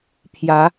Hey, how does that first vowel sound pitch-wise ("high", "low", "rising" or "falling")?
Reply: rising